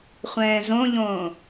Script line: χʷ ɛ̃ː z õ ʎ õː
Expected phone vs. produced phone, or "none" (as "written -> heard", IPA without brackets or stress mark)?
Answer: none